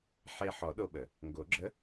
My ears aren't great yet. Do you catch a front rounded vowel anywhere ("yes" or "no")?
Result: no